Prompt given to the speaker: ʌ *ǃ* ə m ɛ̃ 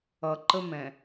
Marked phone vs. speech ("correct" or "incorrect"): correct